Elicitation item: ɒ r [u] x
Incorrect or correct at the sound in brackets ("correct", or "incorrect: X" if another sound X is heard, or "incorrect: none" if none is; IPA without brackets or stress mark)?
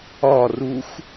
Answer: correct